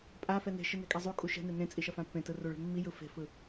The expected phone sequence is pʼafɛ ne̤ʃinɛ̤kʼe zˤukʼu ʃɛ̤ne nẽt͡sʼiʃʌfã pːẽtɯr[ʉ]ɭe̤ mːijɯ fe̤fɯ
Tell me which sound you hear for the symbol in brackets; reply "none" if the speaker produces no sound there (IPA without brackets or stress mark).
u